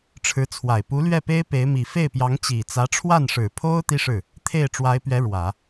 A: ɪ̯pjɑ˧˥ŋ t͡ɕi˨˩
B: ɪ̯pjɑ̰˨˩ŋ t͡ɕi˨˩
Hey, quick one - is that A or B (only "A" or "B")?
A